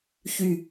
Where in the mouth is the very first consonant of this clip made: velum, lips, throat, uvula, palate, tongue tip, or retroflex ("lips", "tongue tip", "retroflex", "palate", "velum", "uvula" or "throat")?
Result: palate